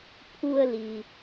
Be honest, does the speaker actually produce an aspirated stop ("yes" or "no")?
yes